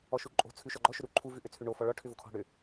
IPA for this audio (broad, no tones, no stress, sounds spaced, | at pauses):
ɔ ʃ u ǃʼ o̤ t͡sʰ ʉ ʃ ɔ ɡ͡ǃ ɔ ʃ ʏ ɾ u ǃʰ u v ʉ ʔ ʏ t͡sʰ ʉ ɳ o f ɔ ɭ ɔ ʈʰ ʏ v o kʰ ɔ̤ ɽ ʏ